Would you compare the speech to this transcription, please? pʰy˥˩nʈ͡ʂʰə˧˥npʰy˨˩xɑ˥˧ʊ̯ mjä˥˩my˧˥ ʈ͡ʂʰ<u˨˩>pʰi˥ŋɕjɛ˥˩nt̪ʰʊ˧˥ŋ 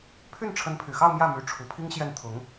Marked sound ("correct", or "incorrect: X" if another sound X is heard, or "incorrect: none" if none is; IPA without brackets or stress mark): correct